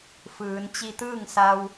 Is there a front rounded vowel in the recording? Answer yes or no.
no